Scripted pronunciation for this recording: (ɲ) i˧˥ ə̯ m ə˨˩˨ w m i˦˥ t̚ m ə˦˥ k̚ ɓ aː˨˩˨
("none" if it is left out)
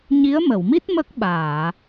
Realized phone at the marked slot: ɲ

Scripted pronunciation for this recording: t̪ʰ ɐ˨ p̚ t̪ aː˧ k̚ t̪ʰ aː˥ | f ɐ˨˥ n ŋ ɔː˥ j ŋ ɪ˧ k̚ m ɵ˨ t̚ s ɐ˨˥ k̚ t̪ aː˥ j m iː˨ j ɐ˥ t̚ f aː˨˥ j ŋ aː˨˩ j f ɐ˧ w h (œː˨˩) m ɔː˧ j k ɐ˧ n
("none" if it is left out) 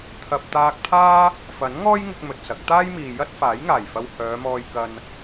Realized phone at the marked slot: œː˨˧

